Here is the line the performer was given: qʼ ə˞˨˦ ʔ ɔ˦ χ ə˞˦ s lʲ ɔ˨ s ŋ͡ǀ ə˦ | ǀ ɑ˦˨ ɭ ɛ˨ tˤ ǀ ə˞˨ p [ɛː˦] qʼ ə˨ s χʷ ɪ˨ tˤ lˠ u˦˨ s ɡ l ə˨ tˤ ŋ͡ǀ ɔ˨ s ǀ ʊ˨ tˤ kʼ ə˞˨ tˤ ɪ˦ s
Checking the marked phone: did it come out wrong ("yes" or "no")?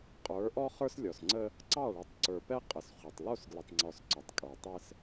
yes